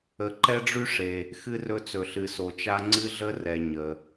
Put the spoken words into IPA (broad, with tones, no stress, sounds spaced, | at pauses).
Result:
ə˨ ǃ ɛ˦ ɖ͡ʐ y˦ ʂ e˨ | x ɨ˦ r ɵ˦ t͡s ɵ˨ ɬ ɨ˨ s o˨ t͡ʃ a˦ ŋ͡ǀ ɨ˦ ɮ ə˦ r ɛ˨ ɲ ə˨